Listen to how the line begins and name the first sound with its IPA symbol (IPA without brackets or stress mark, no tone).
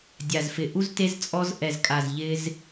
dʲ